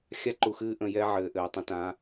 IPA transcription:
xʲa˦ǃu˨xɨː˦ ʔə̃˨jɛ˦ ʕɘː˨ʔɘː˨tˤə̃˦ tã˨˦

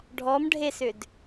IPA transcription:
ɖʱɔmɖʱesʏd

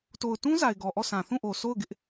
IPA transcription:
to˨ʊ̯tũ˦za˨ɪ̯ ɡɔ˨ʔɔ˦˨sã˨ θũ˦˨ʔo˨sʰo˦˨ʊ̯ ɡɪ˦ʔ

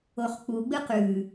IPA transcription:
oχk͡puɡ͡bɨ qʉ

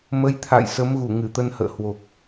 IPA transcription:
mə˨˦jt̪ʰa̰˧˨j sə˨˦mɣu˧˩ ŋɨ˧˩t̪ə˧nhə̰ː˧˨hwo˨˩k̚

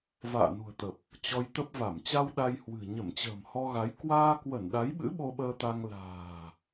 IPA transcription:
va̰ː˧˨nṳ˨˩ə̯t̪ə˨˩p̚ | t͡ɕɔ˧jt̪ə˦˥p̚va˧˩m t͡ɕa˧w ɗa˧jhwɨ̤˨˩ ɲə˧˩mt͡ɕə̤ː˨˩m hɔ˧ɣa˨˦j kwaː˧kwə˧˩n ɗa˨˦jɓɨ̰˧˥ ɓo˧ɓəː˧t̪a˧ŋ la̤ː˨˩

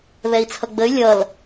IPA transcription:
βɛi̯t͡sʰʌɡ͡bəy̯ lʲʌl

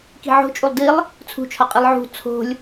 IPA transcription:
ki̤ʕo̤t͡ʃʼulˠ dilˠ | t͡sʰṳt͡ʃʰɒqʼilˠ ʕṳ t͡sʰo̤lʲ

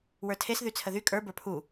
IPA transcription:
wə˞tʰes ðyt͡sʰəðy kʼə˞ bə˞pʰu

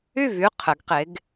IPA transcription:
y˥˩vy˩˧˩ qʰɘ˩˥ɡqe˩˥ɡ

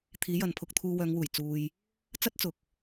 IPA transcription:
t̪ʰiː˨˥jɐ˨npʰʊ˧k̚t̪ʰuː˧ wœː˨˧ŋwuː˨˩j t͡suː˨j | t͡sɐ˥t̚t͡sʊ˨k̚

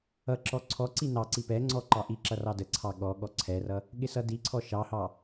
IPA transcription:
ʌǁɔ ǀʰɔǀi nɑǀi pɛŋ͡ǀɔ ǃɑʔiǁʌ rɑdəǀʰɑ ɠɔɠɔ ǀʰɛrʌ | ɠɪsʌdiǀʰɔ ʃɑhɑ

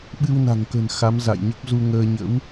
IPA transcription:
ɓɨ˧wna̤˨˩ŋkə̤˨˩n xa˨˦mza̰˧˨jɲə˦˥p̚ zu˧ŋəː˧ ɲə̰˧˥w

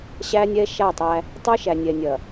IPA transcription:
ɕæ˦nʲɛ˦ʃa˦˨tˤæ˦ | tˤə˞˦ʃæ˨nʲɛ˨nʲɐ˨

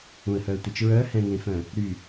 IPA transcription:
ũə̯hœə̯tʷɛt͡ʃ ɹœ hɛ̃ŋẽfœ̃ | ɾy

